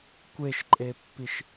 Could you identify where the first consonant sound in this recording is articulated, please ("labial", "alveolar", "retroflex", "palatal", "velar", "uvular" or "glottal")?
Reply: velar